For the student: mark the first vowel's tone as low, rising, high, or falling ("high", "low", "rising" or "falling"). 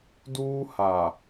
high